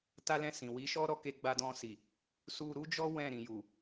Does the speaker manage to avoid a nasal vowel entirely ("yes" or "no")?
no